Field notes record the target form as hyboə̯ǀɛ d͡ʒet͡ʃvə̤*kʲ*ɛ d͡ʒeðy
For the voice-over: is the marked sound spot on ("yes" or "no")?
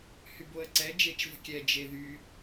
yes